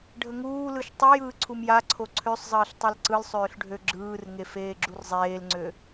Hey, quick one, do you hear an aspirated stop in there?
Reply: yes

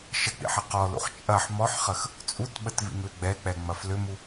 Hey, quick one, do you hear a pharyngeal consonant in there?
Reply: yes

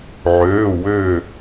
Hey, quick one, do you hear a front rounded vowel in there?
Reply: yes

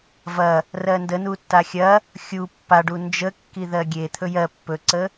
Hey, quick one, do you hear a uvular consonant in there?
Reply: no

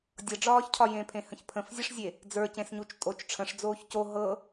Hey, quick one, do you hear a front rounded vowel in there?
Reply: no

